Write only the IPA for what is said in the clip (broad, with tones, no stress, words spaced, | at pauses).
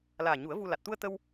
laː˨˩ ɲu˨˩˦ə̯ vu˧ la˨˩t̚t̪u˧ə̯ t̪ə˧w